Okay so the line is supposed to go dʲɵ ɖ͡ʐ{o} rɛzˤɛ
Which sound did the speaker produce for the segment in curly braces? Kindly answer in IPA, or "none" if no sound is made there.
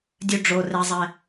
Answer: o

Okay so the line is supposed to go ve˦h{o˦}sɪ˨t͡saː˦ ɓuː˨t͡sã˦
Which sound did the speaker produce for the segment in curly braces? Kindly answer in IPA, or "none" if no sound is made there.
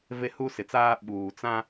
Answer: u˦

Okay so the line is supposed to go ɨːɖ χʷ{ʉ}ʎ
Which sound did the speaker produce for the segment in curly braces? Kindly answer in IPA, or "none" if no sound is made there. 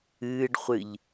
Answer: ɨ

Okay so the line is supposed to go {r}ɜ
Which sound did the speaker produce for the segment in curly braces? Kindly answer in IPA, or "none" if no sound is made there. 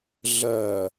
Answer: ɮ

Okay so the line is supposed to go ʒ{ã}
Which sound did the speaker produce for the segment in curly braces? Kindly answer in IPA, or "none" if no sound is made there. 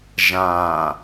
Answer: ã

